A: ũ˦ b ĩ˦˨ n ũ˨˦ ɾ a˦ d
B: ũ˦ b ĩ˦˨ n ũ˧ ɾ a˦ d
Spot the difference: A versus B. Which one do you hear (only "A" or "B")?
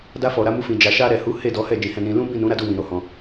A